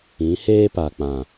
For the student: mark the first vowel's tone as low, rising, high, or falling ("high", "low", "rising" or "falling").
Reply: rising